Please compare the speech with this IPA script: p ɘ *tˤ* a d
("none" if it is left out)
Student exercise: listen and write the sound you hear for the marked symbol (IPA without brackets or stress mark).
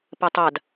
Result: tˤ